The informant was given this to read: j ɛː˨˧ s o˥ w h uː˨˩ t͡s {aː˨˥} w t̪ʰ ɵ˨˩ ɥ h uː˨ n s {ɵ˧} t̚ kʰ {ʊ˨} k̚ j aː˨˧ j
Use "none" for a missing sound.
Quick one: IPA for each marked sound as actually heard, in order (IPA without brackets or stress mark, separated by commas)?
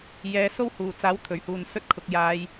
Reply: aː˨˥, ɵ˥, ʊ˨